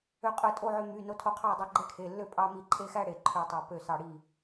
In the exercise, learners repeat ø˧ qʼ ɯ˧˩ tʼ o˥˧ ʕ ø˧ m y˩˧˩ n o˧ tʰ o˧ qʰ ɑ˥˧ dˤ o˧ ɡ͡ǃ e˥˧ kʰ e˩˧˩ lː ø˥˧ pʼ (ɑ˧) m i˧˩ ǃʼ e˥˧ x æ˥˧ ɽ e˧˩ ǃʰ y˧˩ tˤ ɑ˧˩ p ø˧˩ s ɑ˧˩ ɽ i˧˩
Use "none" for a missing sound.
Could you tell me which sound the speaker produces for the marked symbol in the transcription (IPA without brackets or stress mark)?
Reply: ɑ˧